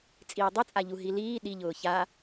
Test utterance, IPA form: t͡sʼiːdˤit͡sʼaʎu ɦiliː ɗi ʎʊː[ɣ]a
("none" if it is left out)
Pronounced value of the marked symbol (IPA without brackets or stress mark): ç